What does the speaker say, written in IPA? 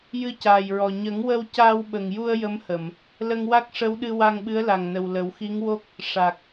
j ɨ˧ c aː˨˩ j ɹ ɔ˨˩ ɲ ə˨˩˦ ŋ w ə˧ w c aː˧ w ɓ ə˨˩ ŋ j u˧ ə̯ j ə˧˥ m h ə˨˩˨ m | l ə˧ ŋ w a˦˥ k̚ ʂ ə˧˥ w ɗ ɨ˧ w a˧ ŋ ɓ ɨ˧˥ ə̯ l a˨˩ ŋ n ə˨˩ w l ə˨˩˦ w x i˧˥ ŋ w o˦˥ k̚ | ʂ a˨˩ k̚

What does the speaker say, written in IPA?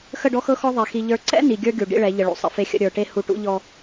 x ə˦˨ ɖ ɔ˦ x ɤ˦ x ɔ˦ ðˤ e˨ x i˨ ʎ ə˞˨ ǀ ɛ̰˦ n i˨ ɡʲ ə˞˦ ɡʲ u˨ ɖ ḭ˦ ɭ ɛ˨˦ ʎ ə˨ ɭ ṵ˨ sˤ ə̰˨˦ f e˦ xʲ ə̰˦ ɾʲ ə˞˨ ʈ e˦ h u˨ ʈ ṵ˦ ʎ ɔ˦

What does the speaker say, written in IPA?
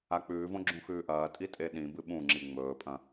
a k͡p ʉː v õ ɡ͡ǁ ũ x ʉː ʔ ɐː tʼ i tʼ e ɗ ĩ b ɨ ɓ ũ ŋ͡ǁ i ŋ͡m ɵː pʼ ɐ̃

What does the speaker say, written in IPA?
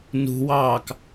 n ṳ w ɑː k

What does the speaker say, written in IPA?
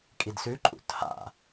kʼ i d s ʉ ǃʼ ṵ tʰ a̰

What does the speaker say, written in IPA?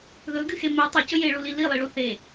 ð ɵ ɡ ɨ x e m e tˤ u c ɵ j e ɭ u l i l i lˠ i ɭ u θ e

